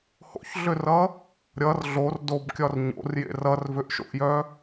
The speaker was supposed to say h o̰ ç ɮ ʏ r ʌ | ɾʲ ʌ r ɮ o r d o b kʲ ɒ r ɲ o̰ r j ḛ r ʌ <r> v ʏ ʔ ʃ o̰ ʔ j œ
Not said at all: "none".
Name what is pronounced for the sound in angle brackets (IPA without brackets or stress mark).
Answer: r